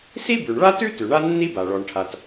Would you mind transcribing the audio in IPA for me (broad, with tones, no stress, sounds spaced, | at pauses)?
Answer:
s i˥ b ʉ˩ ɳ ɭ a˥ t ʉ˥ t ʉ˩ ɳ a˥ nː i˥ b a˩ ɭ ɔ˩ ɳ ʈʰ a˩ t